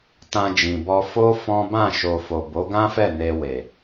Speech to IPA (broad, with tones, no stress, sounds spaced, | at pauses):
t ã˧ d͡ʒ ĩ˨ b ɔ˧ f o˦ f ɔ̃˦ b ã˦˨ ʃ o˨ f o˨ b o˨˦ ɡ ã˦ f ɛ˦˨ n e˧ w e˨